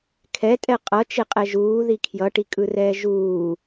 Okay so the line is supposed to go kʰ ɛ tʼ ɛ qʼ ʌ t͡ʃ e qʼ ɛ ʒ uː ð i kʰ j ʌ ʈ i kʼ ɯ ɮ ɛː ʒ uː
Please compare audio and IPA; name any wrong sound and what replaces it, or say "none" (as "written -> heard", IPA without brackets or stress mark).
ɮ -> r